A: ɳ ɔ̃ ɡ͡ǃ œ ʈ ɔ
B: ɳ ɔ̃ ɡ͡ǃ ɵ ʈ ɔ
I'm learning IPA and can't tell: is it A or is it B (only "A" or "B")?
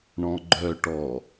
A